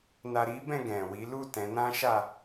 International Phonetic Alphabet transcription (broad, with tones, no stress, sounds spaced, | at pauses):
n a˧ ɾ i˦ b ɛ̃˦˨ ɡ ɛ̃˨ w i˨˦ l u˦˨ t ɛ̃˨˦ n ã˦ ʃ a˦˨